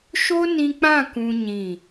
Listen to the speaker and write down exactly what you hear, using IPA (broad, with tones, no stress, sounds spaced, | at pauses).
ʃ o˦ n ĩ˧ k͡p ã˦˨ k ũ˦ ɲ ĩ˦˨